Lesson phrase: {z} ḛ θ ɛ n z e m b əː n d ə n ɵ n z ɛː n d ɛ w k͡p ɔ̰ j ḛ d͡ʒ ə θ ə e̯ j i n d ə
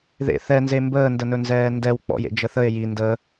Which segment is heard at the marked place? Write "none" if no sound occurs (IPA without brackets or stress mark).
ð